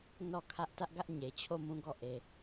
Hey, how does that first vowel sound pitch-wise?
falling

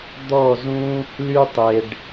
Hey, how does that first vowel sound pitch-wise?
falling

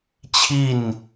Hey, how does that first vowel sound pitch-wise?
falling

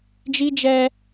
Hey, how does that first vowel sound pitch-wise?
high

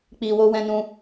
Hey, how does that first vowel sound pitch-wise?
low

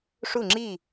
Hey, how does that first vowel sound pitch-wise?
falling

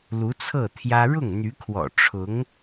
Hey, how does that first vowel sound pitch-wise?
rising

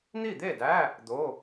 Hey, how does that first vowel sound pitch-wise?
falling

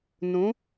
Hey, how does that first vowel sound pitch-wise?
rising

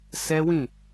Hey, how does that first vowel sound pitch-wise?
high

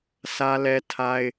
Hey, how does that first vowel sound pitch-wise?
high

